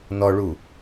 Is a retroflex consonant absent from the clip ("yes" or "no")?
no